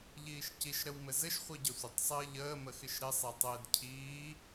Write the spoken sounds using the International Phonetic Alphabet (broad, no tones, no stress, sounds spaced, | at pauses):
ʎ iː ʃ c i ʃ ɾ ə w m ɘ z ɘ ʃ χʷ i ɟ ə sʷ ɪ tˤ sˤ ɘː ʎ əː m ə x ɪ ʃ ɾ ɪ sˤ e tˤ ɘː d cʰ iː